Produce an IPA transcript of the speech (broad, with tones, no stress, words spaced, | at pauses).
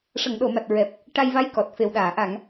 ʂə˨˩˨ŋɗo˨˩˨ma˨˩t̚ ɹɛ˨˩p̚ | ʈa˧jva˧˥j kɔ˨˩t̚ fe˨˩wɗaː˨˩˨ ʔa˨˩˨ŋ